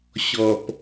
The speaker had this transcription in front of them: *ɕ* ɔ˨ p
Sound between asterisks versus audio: correct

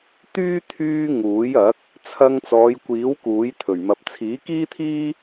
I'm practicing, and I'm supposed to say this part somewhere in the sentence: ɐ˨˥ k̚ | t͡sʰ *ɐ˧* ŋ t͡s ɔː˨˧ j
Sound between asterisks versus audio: correct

